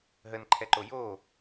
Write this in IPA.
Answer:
ɦ ə n ǃʰ ɛ ǃ o j o

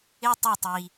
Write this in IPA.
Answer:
ɪ˦ tˤ ʌ˦˨ tˤ i˨

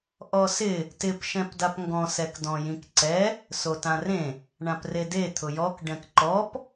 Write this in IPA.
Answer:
ʔ ɔ s ɪ | t ɪ p ʃ ɛ̃ p d a p ŋ ɡ ɔ̃ s ɛ k d ɔ̃ j ĩ k ǀ ɛ | s o t ã r ẽ | ɳ ã p r e d e t̪ʰ ʊ j ɔ k ɖ ɛ̃ k ǃ ɔ p

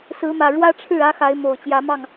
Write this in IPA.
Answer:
s ɹ̩˨˦ m ä˨˩ ɻ w ä˦ ʈ͡ʂʰ ɻ̩˥˨ ä˦ x a˨˦ ɪ̯ m o˨˩ ʊ̯ t͡ɕ j ä˨˦ m ɑ˥˨ ŋ

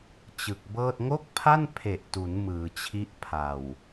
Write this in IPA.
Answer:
t͡ɕ ɯ˨˩ k̚ b ɤː˥˩ t̚ ŋ o˥˩ k̚ pʰ a˥˩ n pʰ e˨˩ ʔ t u˩˦ n m ɯː˩˦ t͡ɕʰ i˦˥ ʔ pʰ a˨˩ w

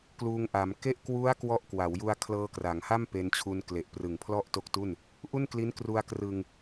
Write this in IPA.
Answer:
k l uː˧ ŋ ʔ a˩˦ m k e˦˥ ʔ k w u˦˥ a̯ k w ɔ˦˥ ʔ k w a˩˦ w j u˧ a̯ kʰ l ɤː˧ k r a˩˦ ŋ h a˥˩ m p e˧ n t͡ɕʰ u˧ n k l e˨˩ ʔ p r ɯ˨˩ ŋ pʰ l ɔ˥˩ ʔ t o˦˥ k̚ t u˥˩ n | ʔ u˥˩ n k l i˦˥ n k r u˧ a̯ k r ɯ˧ ŋ

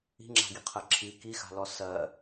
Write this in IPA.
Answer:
i̤ ŋ͡ǁ a̤ ɡ i qʰ ɜ ǁʰ i k i x a̤ l ɔ s ɜ

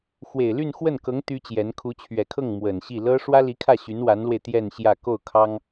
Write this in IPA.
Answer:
x w e˨˩ ɪ̯ l y˥˧ n x w ə˥˩ n k ɤ˧˥ ŋ t̪ y˥ t͡ɕ j ɛ˧˥ n kʰ u˧˥ t͡ɕʰ ɥ ɛ˨˩ kʰ ɤ˥˩ ŋ m w ə˨˩ n ɕ i˥˩ l ɤ˥ ʂ w ä˥ l i˧˥ kʰ ä˥˩ ɕ y˧˥ n w a˧˥ n l w e˧ ɪ̯ t̪ j ɛ˥˧ n ɕ j ä˥˧ k o˥˩ ʊ̯ kʰ ɑ˥ ŋ

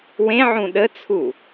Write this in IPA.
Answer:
w ẽ ʕ ũ ɗ ə t͡sʰ u

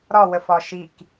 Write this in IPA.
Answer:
ɾ ɒ w ə f ɒ ʃ i k

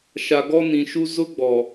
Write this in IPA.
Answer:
ʃ a˨ ɡ ɔ˦ n ĩ˨ ʃ u˦ z ʊ˦ ɡ͡b ɔ˨

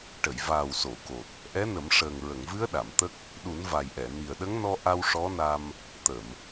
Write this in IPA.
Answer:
ʈ ə˨˩˨ j v aː˨˩ w s o˨˩˨ k o˨˩ t̚ | ʔ ɛ˧˥ n ə˨˩˦ m ʂ əː˨˩ ŋ ɹ ə˨˩˨ ŋ v ɨ˧˥ ə̯ ɗ a˨˩˨ m t̪ ə˦˥ k̚ | ɗ u˨˩˦ n v a˨˩ j ʔ ɛ˨˩˨ n i˨˩ ə̯ ɗ ə˧˥ ŋ n ɔ˧ ʔ a˧ w ʂ ɔ˧˥ n a˧ m | t̪ ə˨˩˨ m

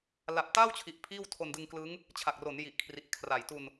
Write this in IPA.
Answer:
l a˨˩ p̚ t aː˥˩ w t͡ɕʰ i˨˩ ʔ pʰ iː˥˩ w tʰ o˧ n d ɯ˧ ŋ k l ɯ˦˥ ŋ | t͡ɕʰ a˨˩ k̚ r o˩˦ n j i˨˩ ʔ kʰ r i˨˩ ʔ kʰ r a˨˩ j t u˧ n

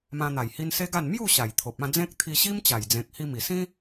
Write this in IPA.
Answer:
m ã˧ n̪ a˨˩ j h i˧ n s e˦ ɡ a˥˧ n m j u˥˧ ɕ a˨˩ j t̪ʰ o˨ p̚ ã˥˧ d͡z ẽ˦ k̚ t̪ʰ i˧ ɕ i˦ m t͡ɕ a˨˩ j d͡z ẽ˨ k̚ h i˧ m i˨˩ s ĩ˦

